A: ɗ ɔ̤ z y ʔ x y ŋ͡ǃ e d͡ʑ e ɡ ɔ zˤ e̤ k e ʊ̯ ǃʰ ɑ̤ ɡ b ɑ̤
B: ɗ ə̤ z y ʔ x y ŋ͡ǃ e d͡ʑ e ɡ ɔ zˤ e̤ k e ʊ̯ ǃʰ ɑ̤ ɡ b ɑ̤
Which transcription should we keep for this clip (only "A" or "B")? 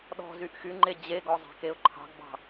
A